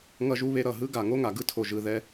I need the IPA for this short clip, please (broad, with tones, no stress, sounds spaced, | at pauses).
ŋ ʌ˧ ʒ u˧ β e˧ ɾ ʌ˨ ɦ ɯ˦ ɡ a˨ ŋ o˦ ŋ a˨ ɡ ɯ˦ tʰ o˨ ʒ ɯ˨ ð ɛ˧